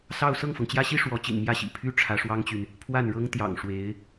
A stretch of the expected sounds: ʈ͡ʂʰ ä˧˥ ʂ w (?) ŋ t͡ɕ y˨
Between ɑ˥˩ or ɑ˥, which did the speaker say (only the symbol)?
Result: ɑ˥